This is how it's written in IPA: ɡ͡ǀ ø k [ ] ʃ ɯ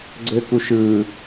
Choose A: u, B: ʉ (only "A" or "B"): A